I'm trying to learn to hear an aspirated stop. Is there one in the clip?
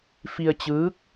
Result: no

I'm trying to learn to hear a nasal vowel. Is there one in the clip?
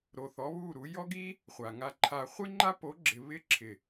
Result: no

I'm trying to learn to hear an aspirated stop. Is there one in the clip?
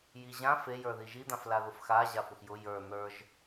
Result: no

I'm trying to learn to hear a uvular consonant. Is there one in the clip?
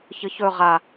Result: yes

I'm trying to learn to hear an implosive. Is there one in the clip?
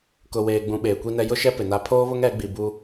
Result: yes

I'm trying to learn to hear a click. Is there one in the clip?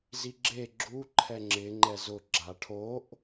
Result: yes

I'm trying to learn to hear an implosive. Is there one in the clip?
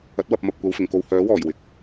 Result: no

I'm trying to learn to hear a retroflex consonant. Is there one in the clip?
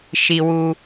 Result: no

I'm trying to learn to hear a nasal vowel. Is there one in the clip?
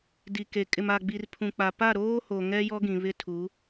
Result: yes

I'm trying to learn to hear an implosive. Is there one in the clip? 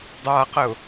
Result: no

